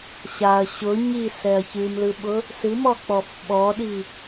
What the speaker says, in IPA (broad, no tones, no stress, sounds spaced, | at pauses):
ɕ a ɐ̯ ɕ ʊ ɲ i s ɛ ɐ̯ ç ɨ m l ɯ ɓ ʊ | s ɨ m ɔ k͡p ɔ f ɓ ɔ ɗ i